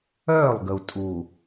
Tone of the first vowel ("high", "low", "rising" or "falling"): falling